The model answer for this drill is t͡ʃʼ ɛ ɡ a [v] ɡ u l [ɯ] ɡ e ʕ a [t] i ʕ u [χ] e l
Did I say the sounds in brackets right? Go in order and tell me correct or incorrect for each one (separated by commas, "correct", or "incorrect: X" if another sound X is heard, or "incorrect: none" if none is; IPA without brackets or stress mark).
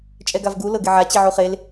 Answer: correct, incorrect: ɤ, incorrect: t͡ɕ, correct